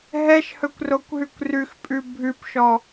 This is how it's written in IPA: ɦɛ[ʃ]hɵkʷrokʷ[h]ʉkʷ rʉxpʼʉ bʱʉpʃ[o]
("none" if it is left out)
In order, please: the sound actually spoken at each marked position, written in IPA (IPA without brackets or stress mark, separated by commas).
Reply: ʃ, ɦ, ɔ